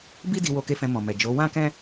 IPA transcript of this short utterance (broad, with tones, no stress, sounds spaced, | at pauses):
b i˦ d i˧ w o˧ k e˧ f ɛ̃˧ m ɔ̃˨ m ɛ˨ d͡ʒ o˨˦ w ã˦ k ɛ̃˦